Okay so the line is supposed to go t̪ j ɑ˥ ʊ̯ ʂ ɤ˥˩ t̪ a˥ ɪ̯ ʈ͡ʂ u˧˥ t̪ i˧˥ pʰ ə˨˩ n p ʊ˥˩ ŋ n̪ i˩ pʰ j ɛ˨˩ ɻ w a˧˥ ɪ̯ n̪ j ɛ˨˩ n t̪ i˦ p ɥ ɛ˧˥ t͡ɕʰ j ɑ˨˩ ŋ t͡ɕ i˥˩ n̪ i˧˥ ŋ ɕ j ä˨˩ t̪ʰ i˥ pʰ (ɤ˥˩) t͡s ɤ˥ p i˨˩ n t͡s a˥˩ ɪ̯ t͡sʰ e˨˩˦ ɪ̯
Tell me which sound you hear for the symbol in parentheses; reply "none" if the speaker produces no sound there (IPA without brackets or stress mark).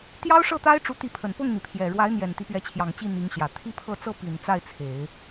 ɤ˥˩